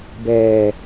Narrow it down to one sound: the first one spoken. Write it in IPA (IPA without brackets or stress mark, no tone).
b